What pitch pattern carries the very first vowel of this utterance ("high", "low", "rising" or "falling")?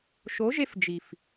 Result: rising